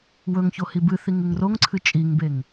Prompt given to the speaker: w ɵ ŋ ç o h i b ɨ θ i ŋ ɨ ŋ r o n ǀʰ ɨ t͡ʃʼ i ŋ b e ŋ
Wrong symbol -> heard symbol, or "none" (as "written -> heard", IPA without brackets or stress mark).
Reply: n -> ŋ